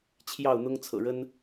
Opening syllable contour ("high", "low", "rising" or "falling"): falling